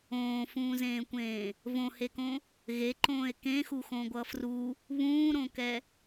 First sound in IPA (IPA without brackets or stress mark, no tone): õː